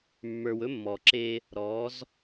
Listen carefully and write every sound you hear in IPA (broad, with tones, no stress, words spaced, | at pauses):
mːə˞˨wɵ˦mːɔː˨ǁeː˦ | ɾɔː˨˦z